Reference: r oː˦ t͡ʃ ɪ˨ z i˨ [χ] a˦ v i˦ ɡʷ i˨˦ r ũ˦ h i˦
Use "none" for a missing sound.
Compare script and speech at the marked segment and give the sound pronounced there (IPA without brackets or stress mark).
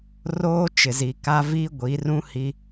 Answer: k